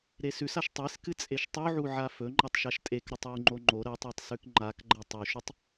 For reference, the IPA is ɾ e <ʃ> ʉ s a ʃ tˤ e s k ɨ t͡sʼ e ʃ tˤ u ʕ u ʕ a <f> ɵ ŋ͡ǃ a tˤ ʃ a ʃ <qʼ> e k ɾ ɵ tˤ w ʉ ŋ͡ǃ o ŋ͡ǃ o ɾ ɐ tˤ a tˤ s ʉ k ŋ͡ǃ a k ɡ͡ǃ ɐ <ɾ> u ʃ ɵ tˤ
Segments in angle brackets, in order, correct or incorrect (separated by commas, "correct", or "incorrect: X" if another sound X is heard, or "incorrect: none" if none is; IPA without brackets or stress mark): incorrect: s, correct, incorrect: tʼ, incorrect: tˤ